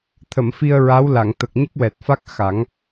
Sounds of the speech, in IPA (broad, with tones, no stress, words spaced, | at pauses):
t̪ʰə˨˩˨mfi˧ə̯ ɹa˧˥wla˨˩˨ŋ t̪ə˨˩k̚ɲə˦˥k̚wɛ˨˩t̚fa˦˥k̚ xa˨˩˦ŋ